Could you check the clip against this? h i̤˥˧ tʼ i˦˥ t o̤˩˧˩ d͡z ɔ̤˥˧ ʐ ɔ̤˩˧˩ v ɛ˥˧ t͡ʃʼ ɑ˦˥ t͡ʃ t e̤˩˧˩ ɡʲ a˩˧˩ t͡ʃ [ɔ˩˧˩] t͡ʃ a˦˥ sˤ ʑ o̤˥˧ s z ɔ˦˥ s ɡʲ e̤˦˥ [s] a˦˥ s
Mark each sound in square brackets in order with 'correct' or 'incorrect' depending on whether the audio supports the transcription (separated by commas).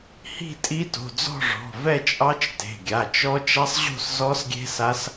incorrect, correct